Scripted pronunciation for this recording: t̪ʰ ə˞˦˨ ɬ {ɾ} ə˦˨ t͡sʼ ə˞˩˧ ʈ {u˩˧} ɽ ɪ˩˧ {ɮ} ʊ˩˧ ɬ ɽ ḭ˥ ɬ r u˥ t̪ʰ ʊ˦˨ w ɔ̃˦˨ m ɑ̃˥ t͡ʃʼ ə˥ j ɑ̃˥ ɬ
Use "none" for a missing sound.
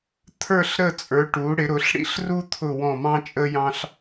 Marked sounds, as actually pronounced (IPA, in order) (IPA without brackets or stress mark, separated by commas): ɾ, u˩˧, ɾ